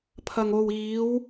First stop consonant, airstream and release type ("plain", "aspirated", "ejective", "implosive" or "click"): aspirated